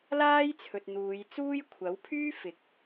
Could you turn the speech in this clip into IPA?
l aː˥ j t͡sʰ ɵ˨ t̚ n̪ uː˨˧ j t͡s uː˥ j kʷʰ ɐ˨˥ w pʰ yː˥ f ɪ˨˥ k̚

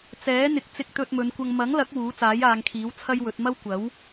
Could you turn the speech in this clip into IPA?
t͡s ɛː˨˥ n̪ ɪ˨ k̚ t͡s ɪ˧ k̚ t̪ ɵ˧ t̚ m ɵ˨˧ n kʷ ɐ˧ ŋ m ɐ˨˥ ŋ l ɐ˨˥ k̚ w uː˨˥ t͡s aː˨˥ j aː˨˧ ŋ kʰ iː˨˥ w t͡sʰ ɐ˥ j w ɵ˨˥ t̚ m ɐ˥ w kʷ ɐ˨˥ w

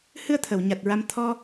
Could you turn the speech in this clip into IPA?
h ɨ˧ ə̯ t̪ʰ ə˨˩˨ w ɲ a˨˩ t̚ ɹ a˧ m t̪ʰ ɔ˧

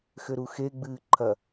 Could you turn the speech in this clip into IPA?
x ɘ ɾ u x e ɡ͡b ɨː ǃʰ ɐ

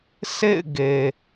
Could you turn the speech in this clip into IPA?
s ḛ˦˨ ɪ̯ ɡ e˨

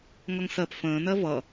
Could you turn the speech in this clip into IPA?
ŋ ʌ ŋ s ɜ p f ə̃ː n ɜ v ʌ

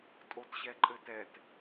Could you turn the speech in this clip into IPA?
tʼ o t ɕ ɛ ǃʼ ɘ t ɛ t

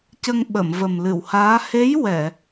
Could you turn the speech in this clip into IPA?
c ə˧ ŋ ɓ ə˨˩˨ m v ə˨˩ m l ɨ˨˩˨ w h aː˧˥ h e˧˥ j w ɛ˨˩˨

